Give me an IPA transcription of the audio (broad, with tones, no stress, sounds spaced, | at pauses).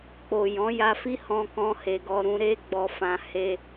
k͡p o˨ j ɔ̃˨˦ j a˧ f i˦ h ɔ̃˧ k ɔ̃˧ h e˧ ɡ ɔ˧ ɾ ũ˧ ɾ e˦ ɡ͡b ɔ˧ f ã˧ h e˧